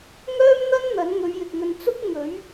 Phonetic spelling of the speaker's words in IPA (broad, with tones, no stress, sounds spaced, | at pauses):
ŋ œː˥ m n̪ ɐ˥ n n̪ ɐ˨˥ n ŋ ɵ˨˧ ɥ j ɪ˨ k̚ ŋ ɵ˧ n t͡s ʊ˥ k̚ ŋ ɵ˨˥ ɥ